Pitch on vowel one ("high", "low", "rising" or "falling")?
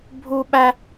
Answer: high